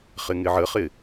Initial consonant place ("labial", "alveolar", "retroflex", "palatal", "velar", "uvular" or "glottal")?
uvular